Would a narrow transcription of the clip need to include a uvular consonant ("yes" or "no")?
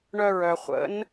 yes